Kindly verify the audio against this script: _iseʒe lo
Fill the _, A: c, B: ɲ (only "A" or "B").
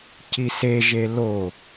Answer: A